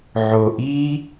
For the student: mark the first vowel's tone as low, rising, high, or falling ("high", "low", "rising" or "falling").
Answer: low